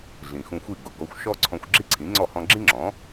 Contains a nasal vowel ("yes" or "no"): yes